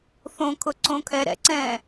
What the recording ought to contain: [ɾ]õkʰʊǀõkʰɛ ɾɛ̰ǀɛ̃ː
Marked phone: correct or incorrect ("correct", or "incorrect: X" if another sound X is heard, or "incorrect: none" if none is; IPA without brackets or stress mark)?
incorrect: θ